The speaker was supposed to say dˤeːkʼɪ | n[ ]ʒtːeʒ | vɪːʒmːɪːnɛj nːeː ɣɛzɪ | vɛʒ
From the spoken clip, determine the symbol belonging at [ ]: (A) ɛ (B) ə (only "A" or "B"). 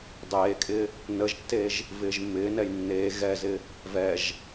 B